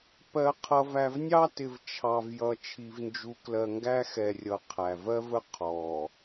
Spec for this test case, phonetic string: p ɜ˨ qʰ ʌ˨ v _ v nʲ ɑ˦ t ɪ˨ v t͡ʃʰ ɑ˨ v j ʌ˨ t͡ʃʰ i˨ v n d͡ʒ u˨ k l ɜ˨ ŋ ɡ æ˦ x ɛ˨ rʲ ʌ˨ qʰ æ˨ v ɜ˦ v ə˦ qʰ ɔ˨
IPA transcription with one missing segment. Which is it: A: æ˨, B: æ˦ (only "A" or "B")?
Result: A